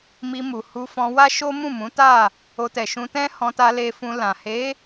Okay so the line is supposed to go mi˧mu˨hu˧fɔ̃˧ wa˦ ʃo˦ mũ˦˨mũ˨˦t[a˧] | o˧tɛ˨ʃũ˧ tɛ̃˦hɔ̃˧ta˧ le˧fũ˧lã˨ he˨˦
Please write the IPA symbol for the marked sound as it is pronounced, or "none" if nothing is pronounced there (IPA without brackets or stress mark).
a˦˨